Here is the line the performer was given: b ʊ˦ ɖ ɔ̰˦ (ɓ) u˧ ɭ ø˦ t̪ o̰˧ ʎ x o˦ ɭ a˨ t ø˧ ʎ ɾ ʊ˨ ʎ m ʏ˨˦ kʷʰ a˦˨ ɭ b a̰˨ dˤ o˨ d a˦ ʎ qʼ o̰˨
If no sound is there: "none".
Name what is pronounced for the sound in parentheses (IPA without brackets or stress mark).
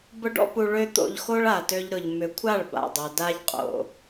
p